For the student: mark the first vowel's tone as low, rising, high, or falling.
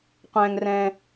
high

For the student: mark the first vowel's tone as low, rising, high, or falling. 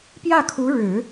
falling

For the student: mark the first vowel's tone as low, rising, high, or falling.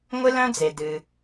high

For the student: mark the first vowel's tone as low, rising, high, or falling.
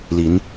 rising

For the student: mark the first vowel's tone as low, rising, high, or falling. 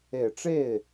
low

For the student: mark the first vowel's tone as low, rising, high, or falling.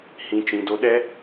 low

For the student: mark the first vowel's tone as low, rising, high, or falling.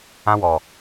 high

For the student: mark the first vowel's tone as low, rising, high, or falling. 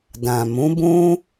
low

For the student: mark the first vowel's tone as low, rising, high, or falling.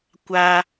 high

